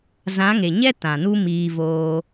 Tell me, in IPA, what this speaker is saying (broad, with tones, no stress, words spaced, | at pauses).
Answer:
zã˨˦ŋe˨ɲɛ˦ tã˨nu˦miː˧ voː˧